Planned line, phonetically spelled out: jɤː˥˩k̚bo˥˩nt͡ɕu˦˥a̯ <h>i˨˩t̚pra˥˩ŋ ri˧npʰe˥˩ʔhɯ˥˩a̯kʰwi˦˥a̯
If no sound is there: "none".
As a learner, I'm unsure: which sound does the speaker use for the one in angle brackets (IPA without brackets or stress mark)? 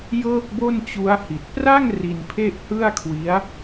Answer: h